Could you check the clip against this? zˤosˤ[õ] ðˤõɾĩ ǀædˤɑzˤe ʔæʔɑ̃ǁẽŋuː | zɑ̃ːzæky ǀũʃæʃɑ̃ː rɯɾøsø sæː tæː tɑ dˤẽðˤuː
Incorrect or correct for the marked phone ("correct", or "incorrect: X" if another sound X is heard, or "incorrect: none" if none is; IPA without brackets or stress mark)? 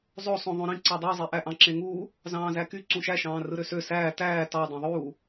correct